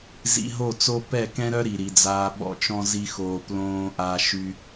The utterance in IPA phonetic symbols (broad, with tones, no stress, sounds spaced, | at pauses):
z ḭ˧ ɦ o˦˨ t͡s o˦ p ɛ˦˨ k ɛ̃˦ ɾ œ˦ ɾ i˨ ɾ i˨ d͡z aː˧ ɓ ɔ̰˦ t͡ʃ ɔ̃˦ z i˦ x oː˧ p l õː˧ ʔ a˧ ʃ y˧